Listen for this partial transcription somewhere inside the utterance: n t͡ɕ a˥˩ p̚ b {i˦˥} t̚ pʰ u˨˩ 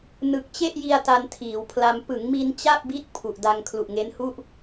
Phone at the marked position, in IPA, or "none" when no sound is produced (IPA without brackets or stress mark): i˦˥